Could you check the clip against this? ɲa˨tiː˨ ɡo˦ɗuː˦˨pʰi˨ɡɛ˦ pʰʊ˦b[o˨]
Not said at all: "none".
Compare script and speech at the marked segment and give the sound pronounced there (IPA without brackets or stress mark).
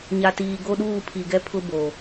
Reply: o˨